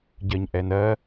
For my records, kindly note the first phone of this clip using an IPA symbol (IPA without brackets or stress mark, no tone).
ɟ